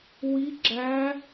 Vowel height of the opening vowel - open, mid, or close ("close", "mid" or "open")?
close